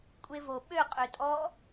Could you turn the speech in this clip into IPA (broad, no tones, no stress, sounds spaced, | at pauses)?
kʷʼ e v o ɓ ø qʼ ø tʼ ɔ